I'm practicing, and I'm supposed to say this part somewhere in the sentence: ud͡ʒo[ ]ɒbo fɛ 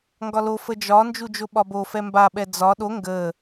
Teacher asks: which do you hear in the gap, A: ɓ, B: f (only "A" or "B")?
A